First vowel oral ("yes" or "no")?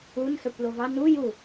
yes